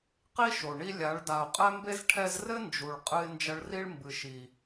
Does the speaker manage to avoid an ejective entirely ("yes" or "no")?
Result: no